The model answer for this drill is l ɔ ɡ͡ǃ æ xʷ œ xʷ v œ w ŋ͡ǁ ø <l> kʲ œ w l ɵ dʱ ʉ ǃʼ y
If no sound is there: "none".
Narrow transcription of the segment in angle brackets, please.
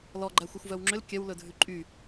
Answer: l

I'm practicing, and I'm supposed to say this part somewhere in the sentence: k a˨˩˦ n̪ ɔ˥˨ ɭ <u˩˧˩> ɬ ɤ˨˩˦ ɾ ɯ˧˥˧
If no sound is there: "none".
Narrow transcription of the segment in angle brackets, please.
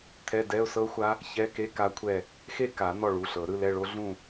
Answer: u˩˧˩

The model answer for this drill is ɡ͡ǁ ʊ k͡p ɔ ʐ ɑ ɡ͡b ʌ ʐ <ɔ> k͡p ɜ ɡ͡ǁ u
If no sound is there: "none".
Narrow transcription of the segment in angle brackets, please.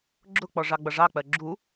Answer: ɑ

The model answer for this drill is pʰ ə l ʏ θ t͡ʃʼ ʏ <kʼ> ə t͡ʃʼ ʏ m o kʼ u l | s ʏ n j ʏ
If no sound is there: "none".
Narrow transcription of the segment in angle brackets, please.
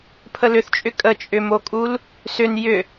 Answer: kʼ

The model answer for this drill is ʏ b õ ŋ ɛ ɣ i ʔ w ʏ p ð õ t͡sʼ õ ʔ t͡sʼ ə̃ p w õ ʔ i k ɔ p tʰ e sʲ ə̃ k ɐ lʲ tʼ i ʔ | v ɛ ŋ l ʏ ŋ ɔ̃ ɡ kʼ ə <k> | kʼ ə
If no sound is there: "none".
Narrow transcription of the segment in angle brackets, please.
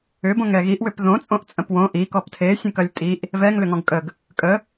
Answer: ɡ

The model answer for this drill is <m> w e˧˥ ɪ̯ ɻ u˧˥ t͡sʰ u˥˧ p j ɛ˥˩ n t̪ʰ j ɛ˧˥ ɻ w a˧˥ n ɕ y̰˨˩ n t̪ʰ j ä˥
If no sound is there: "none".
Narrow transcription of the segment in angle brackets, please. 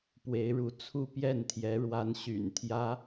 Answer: p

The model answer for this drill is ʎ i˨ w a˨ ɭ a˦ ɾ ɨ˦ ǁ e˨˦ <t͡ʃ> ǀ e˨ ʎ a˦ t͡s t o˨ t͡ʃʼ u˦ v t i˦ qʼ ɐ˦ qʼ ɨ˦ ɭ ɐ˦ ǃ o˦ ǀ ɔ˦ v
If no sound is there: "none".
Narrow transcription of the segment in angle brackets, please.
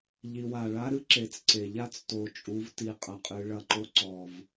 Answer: t͡s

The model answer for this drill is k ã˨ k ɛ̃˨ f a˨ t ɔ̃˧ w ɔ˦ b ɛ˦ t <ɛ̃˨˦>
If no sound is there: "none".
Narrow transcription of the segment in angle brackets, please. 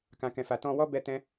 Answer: ɛ̃˦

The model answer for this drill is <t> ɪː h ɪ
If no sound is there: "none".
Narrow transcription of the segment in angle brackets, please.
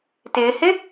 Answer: t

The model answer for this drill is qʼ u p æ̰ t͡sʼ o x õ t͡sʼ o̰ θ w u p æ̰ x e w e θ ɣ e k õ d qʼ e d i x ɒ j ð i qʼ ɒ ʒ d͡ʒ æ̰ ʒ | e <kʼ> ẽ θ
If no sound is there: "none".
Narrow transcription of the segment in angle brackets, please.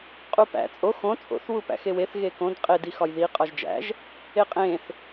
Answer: qʼ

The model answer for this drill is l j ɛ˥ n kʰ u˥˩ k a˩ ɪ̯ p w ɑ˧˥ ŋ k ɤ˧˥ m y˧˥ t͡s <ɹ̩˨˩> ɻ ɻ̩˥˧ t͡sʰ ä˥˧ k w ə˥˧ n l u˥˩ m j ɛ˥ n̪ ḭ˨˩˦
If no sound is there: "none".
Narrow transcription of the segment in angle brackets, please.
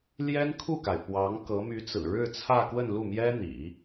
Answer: ɹ̩˨˩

